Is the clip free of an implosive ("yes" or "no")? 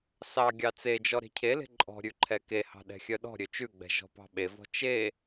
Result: no